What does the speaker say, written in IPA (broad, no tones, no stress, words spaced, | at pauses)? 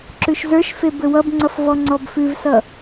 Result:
ǁʉʃzə˞ʃfe bɘwʌbŋ͡ǀʌf vɔŋ͡ǀɔbfʉvsʌ